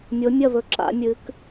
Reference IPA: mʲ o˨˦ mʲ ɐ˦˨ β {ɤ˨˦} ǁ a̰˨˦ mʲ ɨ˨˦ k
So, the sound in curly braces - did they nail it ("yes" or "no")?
no